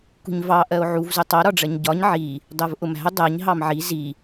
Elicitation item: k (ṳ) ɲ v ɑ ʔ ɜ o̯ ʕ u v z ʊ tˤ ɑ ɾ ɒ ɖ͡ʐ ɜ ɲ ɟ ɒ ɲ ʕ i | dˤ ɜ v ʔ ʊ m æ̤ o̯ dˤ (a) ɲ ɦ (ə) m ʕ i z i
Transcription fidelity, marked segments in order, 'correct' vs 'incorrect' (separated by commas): correct, incorrect, incorrect